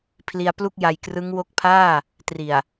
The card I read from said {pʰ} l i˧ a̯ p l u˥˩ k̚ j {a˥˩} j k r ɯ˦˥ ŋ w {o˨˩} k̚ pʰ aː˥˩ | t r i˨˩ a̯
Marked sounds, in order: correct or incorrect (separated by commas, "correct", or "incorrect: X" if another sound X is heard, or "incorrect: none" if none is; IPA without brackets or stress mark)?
correct, incorrect: a˧, incorrect: o˦˥